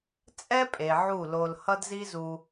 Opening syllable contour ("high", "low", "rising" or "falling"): high